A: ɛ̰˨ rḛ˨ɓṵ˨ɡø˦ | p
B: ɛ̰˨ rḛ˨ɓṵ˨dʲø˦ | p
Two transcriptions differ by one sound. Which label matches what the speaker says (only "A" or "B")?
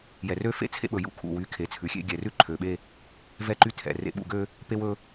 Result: A